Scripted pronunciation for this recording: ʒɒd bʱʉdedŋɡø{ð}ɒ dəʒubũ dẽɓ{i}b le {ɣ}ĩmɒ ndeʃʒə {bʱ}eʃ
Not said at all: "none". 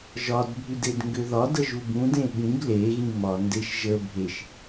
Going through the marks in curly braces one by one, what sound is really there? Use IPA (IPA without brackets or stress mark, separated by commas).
ð, ĩ, ɣ, bʱ